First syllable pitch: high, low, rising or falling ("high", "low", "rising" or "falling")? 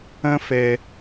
high